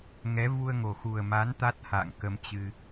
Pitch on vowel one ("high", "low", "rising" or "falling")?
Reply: rising